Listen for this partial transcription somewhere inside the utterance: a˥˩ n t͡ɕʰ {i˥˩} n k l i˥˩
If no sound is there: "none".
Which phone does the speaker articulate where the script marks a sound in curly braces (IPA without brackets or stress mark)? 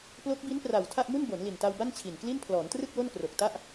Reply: i˨˩